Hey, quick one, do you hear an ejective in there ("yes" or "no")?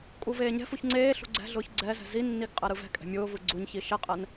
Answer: yes